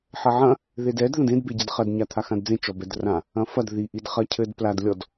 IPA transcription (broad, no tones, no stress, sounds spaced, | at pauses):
ħ ɐ ʕ ɐ̃ | ð e d ɛ d ð ɐ̃ d ẽ d b e ɟ e d χ ɐ d ɲ a t̪ʰ a x ã d d͡z ẽ t͡ʃ ɔ b ɛ d r ã | ɐ̃ f ɐ d ð i ʔ i d χ ɐ cʰ ɘ d p l a d lʲ ɔ d